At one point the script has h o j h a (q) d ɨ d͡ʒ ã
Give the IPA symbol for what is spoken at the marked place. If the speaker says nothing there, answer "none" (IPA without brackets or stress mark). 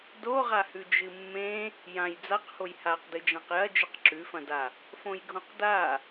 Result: q